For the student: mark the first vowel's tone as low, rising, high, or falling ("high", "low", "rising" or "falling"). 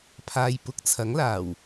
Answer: low